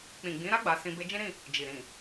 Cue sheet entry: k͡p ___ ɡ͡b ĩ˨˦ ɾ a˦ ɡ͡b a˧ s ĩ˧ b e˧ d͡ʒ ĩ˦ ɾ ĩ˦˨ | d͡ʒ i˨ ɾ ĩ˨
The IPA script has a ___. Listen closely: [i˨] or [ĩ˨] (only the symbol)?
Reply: ĩ˨